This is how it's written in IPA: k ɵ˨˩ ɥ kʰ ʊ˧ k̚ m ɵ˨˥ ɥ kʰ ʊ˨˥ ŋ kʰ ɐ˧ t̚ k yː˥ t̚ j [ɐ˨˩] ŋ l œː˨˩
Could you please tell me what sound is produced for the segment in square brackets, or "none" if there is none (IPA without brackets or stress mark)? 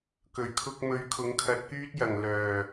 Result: ɐ˨˩